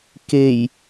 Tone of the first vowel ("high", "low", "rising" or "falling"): low